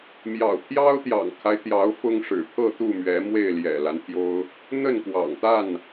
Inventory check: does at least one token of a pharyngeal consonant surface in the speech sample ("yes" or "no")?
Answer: no